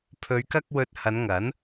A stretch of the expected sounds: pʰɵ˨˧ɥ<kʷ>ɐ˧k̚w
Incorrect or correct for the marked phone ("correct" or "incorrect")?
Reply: incorrect